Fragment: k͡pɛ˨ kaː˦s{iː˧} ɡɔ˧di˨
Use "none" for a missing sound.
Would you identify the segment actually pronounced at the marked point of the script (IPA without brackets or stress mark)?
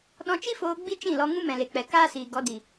iː˨